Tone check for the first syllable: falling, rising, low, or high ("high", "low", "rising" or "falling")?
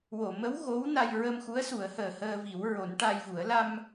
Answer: low